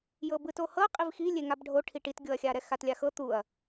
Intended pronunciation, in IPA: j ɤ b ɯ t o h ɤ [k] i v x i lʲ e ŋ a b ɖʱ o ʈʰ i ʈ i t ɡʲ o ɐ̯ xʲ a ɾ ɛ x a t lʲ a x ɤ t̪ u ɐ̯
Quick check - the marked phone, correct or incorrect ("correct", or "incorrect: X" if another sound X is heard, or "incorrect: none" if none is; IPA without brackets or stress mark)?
incorrect: qʼ